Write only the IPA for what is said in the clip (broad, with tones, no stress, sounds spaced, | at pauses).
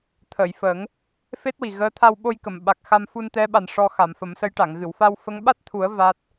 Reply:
t̪ʰ əː˨˩˨ j f ə˨˩˦ ŋ | f e˦˥ t̚ w i˨˩ ɣ əː˧˥ t̪ʰ a˧ w ɓ o˧ j k ə˨˩˨ m ɓ a˨˩ k̚ x a˧ m f u˧ n t̪ ɛ˧˥ ɓ a˨˩ n ʂ ɔ˧ x a˨˩˨ m f ə˨˩˦ m s ə˧˥ j ʈ a˨˩˨ ŋ ɣ ɨ˨˩˨ w f a˧ w f ə˧˥ ŋ ɓ a˦˥ t̚ t̪ʰ u˨˩˦ ə̯ v a˦˥ t̚